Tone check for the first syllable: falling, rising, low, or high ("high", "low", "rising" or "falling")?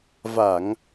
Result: low